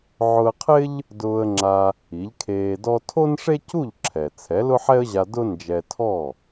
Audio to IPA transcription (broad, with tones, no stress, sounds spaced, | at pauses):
ʕ ʊ˧ ə̯ qʰ ɪ˥ ʎ | d ʊː˧ ə̯ ŋ͡ǁ a˧ | i˩˥ ʎ kʰ eː˧ d ɔ˥ tʰ o˥ n ʂ e˥ c u˥˩ ʎ ǁʰ ɛ˩ t͡sʰ ɛ˩˥ l ʊ˥ ħ ɛ˥ ə̯ ʑ a˧ d ʊ˥ n d͡ʒ ɛ˧ tʰ ɔ˥˩